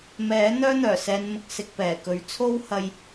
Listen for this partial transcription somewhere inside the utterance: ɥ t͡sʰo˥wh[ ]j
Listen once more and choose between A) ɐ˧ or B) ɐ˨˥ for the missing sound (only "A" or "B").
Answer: A